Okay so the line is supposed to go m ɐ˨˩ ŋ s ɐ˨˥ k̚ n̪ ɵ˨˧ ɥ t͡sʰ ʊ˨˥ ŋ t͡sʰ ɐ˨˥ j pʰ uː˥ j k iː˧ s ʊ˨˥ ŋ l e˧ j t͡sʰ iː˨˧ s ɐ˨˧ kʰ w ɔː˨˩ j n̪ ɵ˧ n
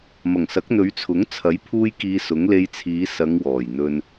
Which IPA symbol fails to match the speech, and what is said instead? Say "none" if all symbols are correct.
kʰ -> ŋ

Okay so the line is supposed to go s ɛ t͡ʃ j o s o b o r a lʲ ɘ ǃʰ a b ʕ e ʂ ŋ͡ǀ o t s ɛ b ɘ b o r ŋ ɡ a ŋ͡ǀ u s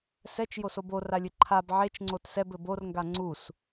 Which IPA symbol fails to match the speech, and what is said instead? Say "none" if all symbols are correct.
ʂ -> t͡ʃ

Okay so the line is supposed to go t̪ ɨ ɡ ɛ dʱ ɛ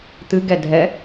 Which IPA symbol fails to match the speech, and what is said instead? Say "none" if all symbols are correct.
none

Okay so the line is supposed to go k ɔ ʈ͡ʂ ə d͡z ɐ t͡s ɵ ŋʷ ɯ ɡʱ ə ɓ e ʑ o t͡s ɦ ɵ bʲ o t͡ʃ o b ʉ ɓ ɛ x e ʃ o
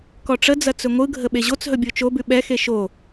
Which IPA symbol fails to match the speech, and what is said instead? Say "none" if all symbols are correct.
none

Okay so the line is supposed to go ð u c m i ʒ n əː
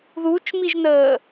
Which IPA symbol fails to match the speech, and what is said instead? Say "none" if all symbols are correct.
c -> t͡ʃ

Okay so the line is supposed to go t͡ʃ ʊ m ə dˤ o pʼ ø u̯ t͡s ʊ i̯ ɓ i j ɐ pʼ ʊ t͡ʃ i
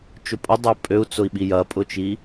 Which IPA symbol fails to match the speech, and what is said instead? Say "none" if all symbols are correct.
m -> pʼ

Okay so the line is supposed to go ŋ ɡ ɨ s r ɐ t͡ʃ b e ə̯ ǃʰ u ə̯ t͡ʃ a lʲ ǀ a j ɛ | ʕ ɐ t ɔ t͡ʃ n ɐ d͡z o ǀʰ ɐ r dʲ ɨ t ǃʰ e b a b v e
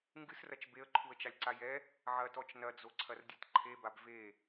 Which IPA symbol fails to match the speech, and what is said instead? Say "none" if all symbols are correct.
none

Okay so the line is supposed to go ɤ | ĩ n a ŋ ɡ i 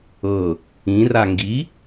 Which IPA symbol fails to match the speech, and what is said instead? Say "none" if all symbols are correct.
n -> r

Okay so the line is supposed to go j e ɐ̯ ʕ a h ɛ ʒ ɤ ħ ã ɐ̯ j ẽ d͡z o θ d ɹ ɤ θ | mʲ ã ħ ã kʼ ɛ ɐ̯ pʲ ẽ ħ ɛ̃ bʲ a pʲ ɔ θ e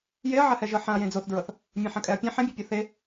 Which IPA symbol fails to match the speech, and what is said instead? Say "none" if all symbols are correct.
none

